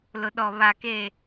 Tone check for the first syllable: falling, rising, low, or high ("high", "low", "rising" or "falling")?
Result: low